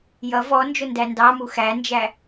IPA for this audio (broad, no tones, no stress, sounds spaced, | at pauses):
j ʌ v ɔ n d͡ʒ ʊ n d æ n d ɑ m u x æ n d͡ʒ æ